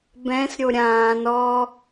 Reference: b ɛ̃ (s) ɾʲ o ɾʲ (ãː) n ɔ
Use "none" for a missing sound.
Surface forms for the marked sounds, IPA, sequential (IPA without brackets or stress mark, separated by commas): s, ãː